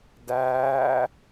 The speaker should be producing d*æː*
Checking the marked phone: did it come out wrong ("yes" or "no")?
no